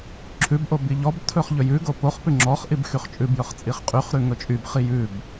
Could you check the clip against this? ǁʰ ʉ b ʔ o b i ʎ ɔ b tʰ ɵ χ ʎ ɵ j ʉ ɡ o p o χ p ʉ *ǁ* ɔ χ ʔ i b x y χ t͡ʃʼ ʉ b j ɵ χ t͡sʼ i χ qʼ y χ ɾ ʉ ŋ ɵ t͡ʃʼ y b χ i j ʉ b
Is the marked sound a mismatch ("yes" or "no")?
yes